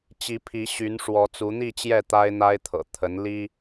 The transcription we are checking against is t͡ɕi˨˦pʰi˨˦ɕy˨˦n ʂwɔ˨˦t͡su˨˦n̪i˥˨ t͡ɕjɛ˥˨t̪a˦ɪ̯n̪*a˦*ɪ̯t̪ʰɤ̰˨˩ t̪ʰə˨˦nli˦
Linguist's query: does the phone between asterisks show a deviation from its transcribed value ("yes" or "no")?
no